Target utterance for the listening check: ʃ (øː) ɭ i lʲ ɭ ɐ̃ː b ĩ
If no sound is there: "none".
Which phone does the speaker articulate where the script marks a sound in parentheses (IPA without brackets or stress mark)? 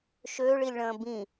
øː